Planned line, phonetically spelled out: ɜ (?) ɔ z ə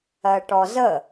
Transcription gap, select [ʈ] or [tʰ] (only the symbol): ʈ